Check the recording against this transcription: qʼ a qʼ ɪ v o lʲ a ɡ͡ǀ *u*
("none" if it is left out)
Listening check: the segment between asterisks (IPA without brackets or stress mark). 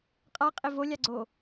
o